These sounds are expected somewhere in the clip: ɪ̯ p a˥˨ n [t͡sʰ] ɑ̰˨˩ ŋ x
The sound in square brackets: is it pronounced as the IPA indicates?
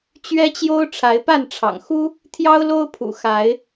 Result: no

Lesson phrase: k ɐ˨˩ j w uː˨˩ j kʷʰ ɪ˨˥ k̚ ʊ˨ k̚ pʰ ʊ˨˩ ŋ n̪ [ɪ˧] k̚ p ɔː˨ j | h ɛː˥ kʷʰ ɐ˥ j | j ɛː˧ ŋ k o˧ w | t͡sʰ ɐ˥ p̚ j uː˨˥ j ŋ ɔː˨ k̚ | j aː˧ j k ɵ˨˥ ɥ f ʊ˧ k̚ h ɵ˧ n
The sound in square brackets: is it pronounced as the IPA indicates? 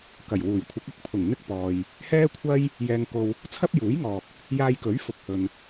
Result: no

